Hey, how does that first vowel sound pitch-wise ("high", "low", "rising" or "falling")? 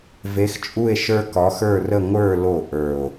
rising